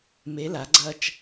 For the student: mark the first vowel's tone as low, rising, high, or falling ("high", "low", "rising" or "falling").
rising